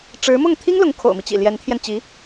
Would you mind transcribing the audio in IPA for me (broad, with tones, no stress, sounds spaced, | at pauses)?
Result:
ʈ͡ʂ ɻ̩˧˥ m ʊ˥˩ ŋ t̪ʰ i˥ ŋ l ʊ˧˥ ŋ kʰ o̰˨˩ ʊ̯ m i˦ t͡ɕ ḭ˨˩ l j ɛ˧˥ n t̪ʰ j ɛ˧ n t͡ɕ i˧˥